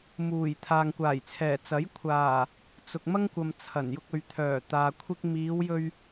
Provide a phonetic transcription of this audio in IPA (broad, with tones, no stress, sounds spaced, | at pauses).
m uː˨˩ j t̪ʰ aː˨ ŋ kʷ aː˨˩ j t͡sʰ ɛː˨˩ t͡s ɐ˨˥ j kʷʰ aː˨˩ | t͡s ʊ˨ k̚ m ɐ˥ ŋ kʷ ɐ˨ m t͡sʰ ɐ˨˩ n j ʊ˧ k̚ ɵ˨ ɥ t̪ʰ œː˨˩ t̪ aː˨ kʷʰ ɪ˧ k̚ m iː˨˧ w j ɵ˧ ɥ